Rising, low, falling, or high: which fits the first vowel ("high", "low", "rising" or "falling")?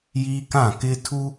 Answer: high